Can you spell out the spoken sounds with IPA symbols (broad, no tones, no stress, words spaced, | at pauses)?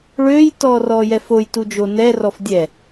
ɭøːjtɔ rɔːjɛfoj tud͡ʒo nɛ rɔfdʲɛ